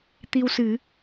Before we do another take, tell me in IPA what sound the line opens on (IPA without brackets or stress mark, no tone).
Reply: t̪